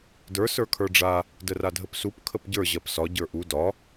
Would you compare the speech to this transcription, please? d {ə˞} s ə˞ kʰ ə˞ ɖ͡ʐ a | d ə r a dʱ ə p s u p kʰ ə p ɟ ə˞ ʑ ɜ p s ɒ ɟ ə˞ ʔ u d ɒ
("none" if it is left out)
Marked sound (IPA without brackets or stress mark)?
ə˞